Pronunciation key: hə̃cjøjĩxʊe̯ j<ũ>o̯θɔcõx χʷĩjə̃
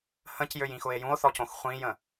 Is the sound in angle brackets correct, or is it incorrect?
correct